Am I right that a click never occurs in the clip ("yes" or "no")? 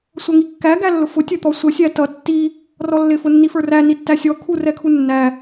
yes